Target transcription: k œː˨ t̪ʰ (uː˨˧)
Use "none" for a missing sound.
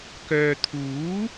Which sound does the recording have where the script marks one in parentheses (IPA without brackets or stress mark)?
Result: uː˨˥